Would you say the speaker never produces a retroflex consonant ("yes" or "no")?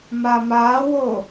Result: yes